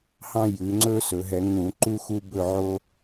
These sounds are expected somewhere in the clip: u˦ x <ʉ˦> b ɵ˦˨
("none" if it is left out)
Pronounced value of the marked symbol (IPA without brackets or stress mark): u˦